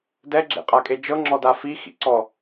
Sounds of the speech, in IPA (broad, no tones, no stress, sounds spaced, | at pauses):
d ɛ ɡ͡ǁ ḛ qʼ a kʼ e d͡ʒ ɤ ŋ͡ǁ ɔ d a f i x ḭ ǀ ɔ